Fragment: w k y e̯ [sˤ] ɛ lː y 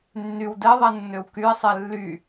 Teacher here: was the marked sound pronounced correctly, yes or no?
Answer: yes